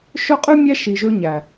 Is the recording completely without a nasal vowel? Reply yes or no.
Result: yes